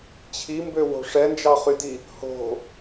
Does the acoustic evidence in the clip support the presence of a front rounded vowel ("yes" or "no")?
yes